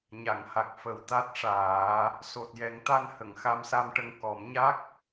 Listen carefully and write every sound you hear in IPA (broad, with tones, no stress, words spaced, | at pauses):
ɲa˨˩˨ŋha˨˩k̚ fə˨˩wt̪a˦˥t̚ʂaː˨˩˦ | so˨˩t̚jɛ˨˩˦ŋ t̪a˧nhə˨˩˨ŋ xa˧˥msa˧mʈə˧ŋ kɔ˨˩˦mɲa˦˥k̚